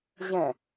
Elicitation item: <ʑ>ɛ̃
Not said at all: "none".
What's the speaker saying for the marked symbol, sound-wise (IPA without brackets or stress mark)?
ʑ